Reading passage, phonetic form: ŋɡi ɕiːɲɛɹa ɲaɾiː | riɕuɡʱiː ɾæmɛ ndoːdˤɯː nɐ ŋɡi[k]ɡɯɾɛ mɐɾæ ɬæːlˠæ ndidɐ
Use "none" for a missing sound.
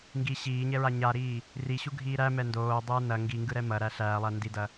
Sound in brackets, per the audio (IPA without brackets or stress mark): ŋ